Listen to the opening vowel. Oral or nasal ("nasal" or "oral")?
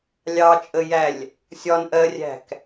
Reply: oral